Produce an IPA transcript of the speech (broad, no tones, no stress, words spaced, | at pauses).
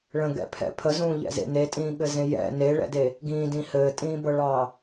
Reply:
ɭə̃ɡɛ̰pʰɛ̰ pʰəzũːʎɛ̰zḛ netʼĩːɠɘzẽ jɛ̰ neɭɛ̰de | ɡĩːdĩ hɘːtʼĩːbɤɭɑ